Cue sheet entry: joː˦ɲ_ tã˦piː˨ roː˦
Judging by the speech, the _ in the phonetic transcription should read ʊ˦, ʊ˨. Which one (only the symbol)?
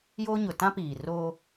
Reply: ʊ˨